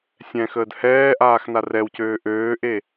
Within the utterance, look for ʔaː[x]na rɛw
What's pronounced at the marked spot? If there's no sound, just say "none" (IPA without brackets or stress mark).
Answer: x